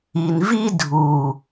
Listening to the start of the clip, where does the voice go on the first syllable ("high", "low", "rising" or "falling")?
low